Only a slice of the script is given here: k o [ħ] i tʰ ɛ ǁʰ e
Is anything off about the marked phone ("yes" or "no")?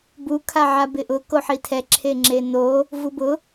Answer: no